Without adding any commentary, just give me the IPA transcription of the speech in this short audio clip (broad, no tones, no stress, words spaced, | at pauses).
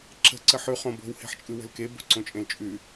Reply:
ǁə̤ ǀəħʉ χõbo̤w he̤ħt͡ʃʼɯwə̤lke bo̤ǀõt͡ʃʼẽlt͡ʃʼʉ